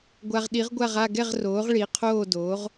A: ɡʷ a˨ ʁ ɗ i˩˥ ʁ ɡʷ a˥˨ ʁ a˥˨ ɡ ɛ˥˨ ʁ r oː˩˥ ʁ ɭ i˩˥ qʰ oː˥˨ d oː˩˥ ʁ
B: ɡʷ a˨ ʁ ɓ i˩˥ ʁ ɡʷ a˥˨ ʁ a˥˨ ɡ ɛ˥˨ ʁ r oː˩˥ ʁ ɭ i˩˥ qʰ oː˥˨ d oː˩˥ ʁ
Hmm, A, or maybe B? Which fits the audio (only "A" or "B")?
A